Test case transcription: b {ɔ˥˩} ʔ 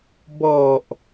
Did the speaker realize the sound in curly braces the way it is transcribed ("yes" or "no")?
no